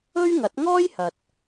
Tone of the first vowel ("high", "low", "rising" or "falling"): high